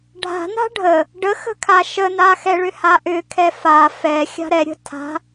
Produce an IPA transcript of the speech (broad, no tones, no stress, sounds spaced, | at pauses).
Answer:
ɖʱ a̤ n a̤ ɖʱ ə | ɖ ə x ə̤ kʰ a ʃ ə n a x ɛ ɭ ʏ h a ʔ ʏ kʰ ɛ f a f ɛ xʲ a̤ ɾ ɛ ɾʲ ə̤ tʰ a̤